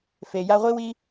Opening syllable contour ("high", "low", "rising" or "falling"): low